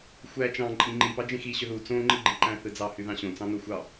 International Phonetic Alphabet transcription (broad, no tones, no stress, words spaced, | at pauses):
xʷæ t͡ʃɑ̃ ǃʼĩŋ͡ǃipɑ d͡ʒẽxi ɕøðu t͡sõŋ͡ǃiɡ͡ǃiǃæ̃ θɯd͡zɑhyðɑ̃ ɕõt͡sɑ̃no xʷɑ